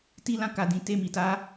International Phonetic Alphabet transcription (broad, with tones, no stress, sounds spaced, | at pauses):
t i˦ l ã˦ k a˧ d ĩ˧ t e˦ m i˧ t a˦